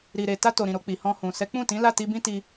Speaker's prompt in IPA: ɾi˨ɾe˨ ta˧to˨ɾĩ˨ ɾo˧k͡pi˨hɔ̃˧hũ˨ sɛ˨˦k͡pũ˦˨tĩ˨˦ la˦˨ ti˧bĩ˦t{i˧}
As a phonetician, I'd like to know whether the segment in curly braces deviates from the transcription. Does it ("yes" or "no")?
no